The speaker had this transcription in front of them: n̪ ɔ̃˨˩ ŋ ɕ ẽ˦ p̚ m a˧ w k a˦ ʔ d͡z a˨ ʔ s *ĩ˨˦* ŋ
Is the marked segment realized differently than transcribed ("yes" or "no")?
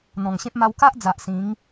no